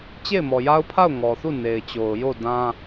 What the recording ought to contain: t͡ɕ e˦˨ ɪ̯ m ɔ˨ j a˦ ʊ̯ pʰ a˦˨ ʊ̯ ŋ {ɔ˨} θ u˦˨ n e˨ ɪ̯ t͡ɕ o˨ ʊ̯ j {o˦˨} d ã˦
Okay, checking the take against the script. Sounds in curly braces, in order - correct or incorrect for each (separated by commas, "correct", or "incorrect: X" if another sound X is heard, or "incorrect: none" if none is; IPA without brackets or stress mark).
correct, correct